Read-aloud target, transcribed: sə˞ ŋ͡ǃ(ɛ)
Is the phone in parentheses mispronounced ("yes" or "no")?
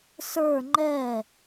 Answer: no